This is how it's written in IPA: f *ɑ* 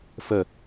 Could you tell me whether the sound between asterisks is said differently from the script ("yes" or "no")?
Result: yes